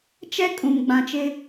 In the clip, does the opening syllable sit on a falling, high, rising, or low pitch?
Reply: high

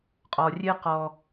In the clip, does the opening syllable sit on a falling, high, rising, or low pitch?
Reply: low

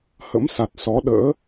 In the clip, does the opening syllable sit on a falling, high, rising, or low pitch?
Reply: rising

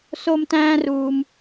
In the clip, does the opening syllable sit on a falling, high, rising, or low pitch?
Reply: high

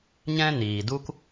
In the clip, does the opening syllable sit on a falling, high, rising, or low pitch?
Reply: high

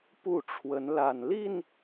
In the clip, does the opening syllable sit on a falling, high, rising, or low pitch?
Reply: falling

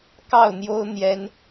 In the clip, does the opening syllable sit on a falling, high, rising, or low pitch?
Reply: falling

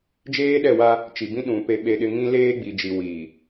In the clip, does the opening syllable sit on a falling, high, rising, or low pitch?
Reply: high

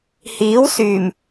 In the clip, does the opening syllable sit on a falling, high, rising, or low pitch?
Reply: rising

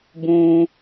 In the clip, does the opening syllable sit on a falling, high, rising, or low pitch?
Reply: high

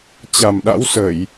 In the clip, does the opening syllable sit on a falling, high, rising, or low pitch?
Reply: low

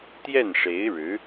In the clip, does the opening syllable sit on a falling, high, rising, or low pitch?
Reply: falling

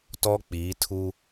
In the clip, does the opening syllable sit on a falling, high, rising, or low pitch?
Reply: high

